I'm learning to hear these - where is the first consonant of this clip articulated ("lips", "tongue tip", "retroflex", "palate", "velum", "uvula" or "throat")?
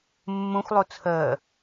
lips